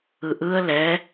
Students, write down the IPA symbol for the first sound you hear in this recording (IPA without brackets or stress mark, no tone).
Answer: ɯ